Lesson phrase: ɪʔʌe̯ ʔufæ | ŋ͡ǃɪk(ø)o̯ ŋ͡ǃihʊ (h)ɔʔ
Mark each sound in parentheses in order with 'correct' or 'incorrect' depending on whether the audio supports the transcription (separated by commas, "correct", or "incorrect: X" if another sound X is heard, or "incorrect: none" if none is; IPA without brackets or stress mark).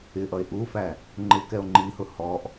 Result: incorrect: ɛ, correct